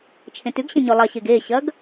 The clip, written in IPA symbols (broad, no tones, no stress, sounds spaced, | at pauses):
t͡ʃʰ ẽ t ʉ ɡ ɕ ẽ ɲ ʉ lˠ ɐ ɕ e ɡ e ɕ ɐ ɡ